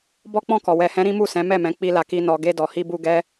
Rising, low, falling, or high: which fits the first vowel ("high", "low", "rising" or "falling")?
high